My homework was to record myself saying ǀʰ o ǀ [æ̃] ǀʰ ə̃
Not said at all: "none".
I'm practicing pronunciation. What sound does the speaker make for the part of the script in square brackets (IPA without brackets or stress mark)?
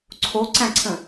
æ̃